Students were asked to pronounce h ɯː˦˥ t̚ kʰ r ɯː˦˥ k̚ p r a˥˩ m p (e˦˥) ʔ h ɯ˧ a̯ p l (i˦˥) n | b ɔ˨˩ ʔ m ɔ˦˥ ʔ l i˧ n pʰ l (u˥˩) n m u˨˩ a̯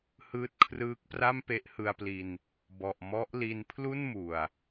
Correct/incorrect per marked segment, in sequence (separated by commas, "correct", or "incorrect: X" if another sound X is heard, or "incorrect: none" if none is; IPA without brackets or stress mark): correct, incorrect: i˧, correct